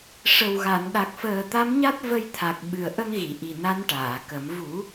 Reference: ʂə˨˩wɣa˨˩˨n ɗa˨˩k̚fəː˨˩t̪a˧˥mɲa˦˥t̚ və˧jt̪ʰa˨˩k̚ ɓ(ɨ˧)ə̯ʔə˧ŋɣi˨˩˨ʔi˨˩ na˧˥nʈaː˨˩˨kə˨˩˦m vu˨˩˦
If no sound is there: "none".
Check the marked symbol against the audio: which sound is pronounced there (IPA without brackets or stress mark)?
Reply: ɨ˨˩